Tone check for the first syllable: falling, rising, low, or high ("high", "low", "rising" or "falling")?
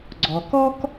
low